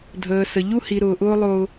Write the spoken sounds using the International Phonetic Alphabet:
dʱ əː˧ s ə˧ ʎ u˦ h i˧ ɾ ʊː˧ ʔ ʊː˦ lˠ ʊː˦

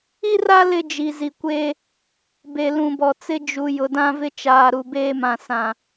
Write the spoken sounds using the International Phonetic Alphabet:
i˦ r a˦ l ɪ˦ d͡ʒ i˨ z i˨ kʷ eː˦ | b e˨ l ũ˨ b ɔ˨ t͡s ɪ˦ d͡ʒ u˨ j ʊ˨ d ã˦ v ɪ˦ t͡ʃ aː˨ ɾ u˨ b eː˦ m ã˨ s ã˨

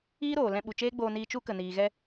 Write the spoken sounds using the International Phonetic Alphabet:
iː˦ ɾ oː˨ l ɛ̃˧ ɓ u˨ t͡ʃ eː˦ ɡ͡b oː˧ n iː˧ t͡ʃ u˦ k ə˨ n iː˨ ɣ ɛ˧

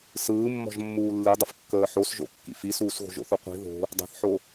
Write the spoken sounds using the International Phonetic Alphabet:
s ɯː mː ɔ̤ ʒ mː uː lː i dˤ ə f kː əː ħ o s ʒ o̰ kː ḭ f i s uː s ɣ o̤ ʒ o̰ θ o qʷ i̤ ð o̤ | dˤ i̤ θ ħ o

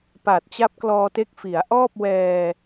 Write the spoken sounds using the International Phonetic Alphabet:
p a˨˩ t̚ t͡ɕ a˦˥ p̚ k l ɔː˧ t e˦˥ k̚ f i˩˦ a̯ ʔ ɔː˥˩ p̚ w ɛː˧

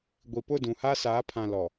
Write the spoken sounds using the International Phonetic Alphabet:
ɡʷ i˨ p ʊ˦˨ d ũ˨ h a˦ s aː˨˦ pʰ ã˨ l ɔ˨

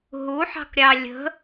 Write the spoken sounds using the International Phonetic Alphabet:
ɦ u ħ ɑ̤ k ɾʲ ɑ lʲ ə̤

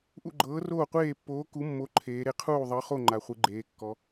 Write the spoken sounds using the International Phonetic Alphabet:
ʔ ṵ˥˨ ɡ͡ǃ ɤː˧˥ r oː˥˨ qʷ eː˥˨ pː oː˧˥ k u˧˥ mː o˧˥ ǃʰ eː˧˥ ɾ e˧˥ qʰ uː˥˨ ðˤ ɤ˧˥ χ o˥˨ ŋ͡ǃ a˧˥ χʷ ɯ˧˥ ɡ͡ǃ eː˧˥ kː ɔ˧˥

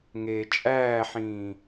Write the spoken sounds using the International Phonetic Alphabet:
ŋ eː t͡ʃʼ æː ħ ĩː

